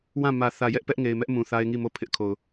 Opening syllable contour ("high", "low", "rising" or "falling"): falling